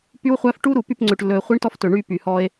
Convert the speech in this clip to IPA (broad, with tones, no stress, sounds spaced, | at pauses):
p y˦ w χʷ æ˦ f ʈ u˦ ɾ u˨ p y˦˨ p ŋ͡ǀ ø˨ ʈ lː ɵ˨ e̯ χʷ i˦ ɳ t ɔ˦ f t ɵ˨ ɳ y˦ p y˨ h ɔ˦ e̯